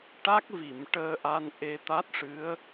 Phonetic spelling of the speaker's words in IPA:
ʈ a˦˥ k̚ v i˨˩˨ m ʈ əː˧ ʔ a˧ n ʔ e˧ t̪ a˦˥ t̚ ʂ ɨ˧˥ ə̯

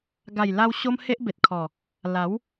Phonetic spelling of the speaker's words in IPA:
ɡ a˨˩ j l a˧ w ɕ o˦ m h e˦ ʔ b e˨ t̚ kʰ ɔ˨˩ | l a˨˦ w

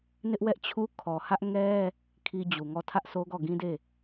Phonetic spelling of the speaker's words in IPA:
n ɪ˦ ʔ w ɛ˦ ʔ t͡ɕʰ u˦ kʰ ɔ˨ h ä˦ ʔ ŋ ɛ˦ | kʰ i˦ d͡ʑ u˨ ŋ ɔ˦˨ tʰ ä˦ ʔ s o˦ ɡ ɔ˦˨ ɡ ĩ˦ d e˦˨

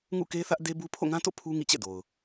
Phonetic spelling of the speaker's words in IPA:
ŋ ṵ˦˨ k e˦ θ ä˦ ʔ d e˦ b u˦ pʰ o̰˦˨ ŋ ã˦ t o̰˦˨ pʰ u˦ ŋ ḭ˦˨ t͡ɕ ɛ̰˦˨ d o˨ ʊ̯

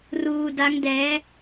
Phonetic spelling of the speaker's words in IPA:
r uː˧ d a˦˥ ŋ d ɛː˦˥

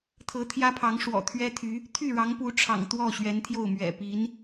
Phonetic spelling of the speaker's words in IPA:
t̪ʰ ɤ˧˥ t̪ʰ j ä˥ pʰ ɑ˧˥ ŋ ʂ w ɔ̰˨˩ t̪ʰ ɥ ɛ˥ t̪ʰ y˧˥ | t̪ʰ y˥˩ ɻ ɑ˧˥ ŋ p u˧˥ ʈ͡ʂʰ ɑ̰˨˩ ŋ t̪ w ɔ˥˩ ɕ ɥ ɛ˧˥ n t̪ʰ j o˥˩ ʊ̯ m ɥ ɛ̰˨˩ p i˧˥ n

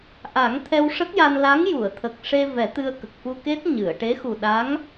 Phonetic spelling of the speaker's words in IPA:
ʔ a˨˩˦ ŋ t̪ʰ ɛ˧ w ʂ ə˦˥ k̚ j a˧ n l a˧˥ ŋ j u˨˩˨ ə̯ t̪ʰ ə˨˩ k̚ ʂ e˧ v ɛ˨˩˦ t̪ ɨ˧ ə̯ k ə˨˩ k̚ f u˧ k e˦˥ t̚ ɲ ɨ˨˩˨ ə̯ ʈ e˧˥ x u˨˩ ɗ a˧˥ ŋ

